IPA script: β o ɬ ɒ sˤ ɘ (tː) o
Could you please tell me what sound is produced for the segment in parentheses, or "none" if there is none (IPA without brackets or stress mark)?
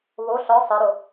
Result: ɾ